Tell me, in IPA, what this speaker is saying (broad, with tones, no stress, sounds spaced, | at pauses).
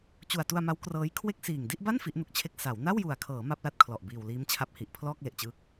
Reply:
t͡ɕ u˨˩ a̯ t u˧ a̯ m a˦˥ w k r ɤː˦˥ j kʰ w e˥˩ k̚ s iː˨˩ ŋ d i˥˩ ʔ b a˥˩ n f i˦˥ ʔ n u˦˥ k̚ t͡ɕʰ e˥˩ k̚ s a˩˦ w n a˥˩ w j u˨˩ a̯ kʰ ɤː˩˦ m a˥˩ p̚ l a˥˩ t̚ kʰ l ɔ˨˩ ʔ b iː˨˩ w l iː˦˥ m t͡ɕʰ a˦˥ p̚ h i˨˩ ʔ pʰ l ɔː˥˩ k̚ l e˨˩ ʔ t͡ɕ ɯː˦˥ k̚